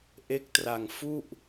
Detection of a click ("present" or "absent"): absent